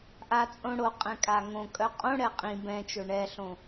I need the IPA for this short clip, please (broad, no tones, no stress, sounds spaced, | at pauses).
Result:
ʔ a t͡sʼ õ ɽ o qʼ ɛ̃ kʼ a ŋ õ kʼ œ qʼ õ ɽ ɛ qʼ ĩ b ɛ̃ t͡ʃ o ɳ ɛ ɬ õ